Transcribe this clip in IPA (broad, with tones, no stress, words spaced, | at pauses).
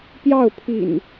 pjɑ˥˨ʊ̯pʰḭ˨˩n